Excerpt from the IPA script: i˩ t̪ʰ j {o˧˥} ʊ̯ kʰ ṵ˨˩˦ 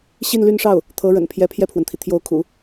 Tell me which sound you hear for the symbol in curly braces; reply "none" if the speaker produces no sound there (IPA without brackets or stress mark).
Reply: o˧˥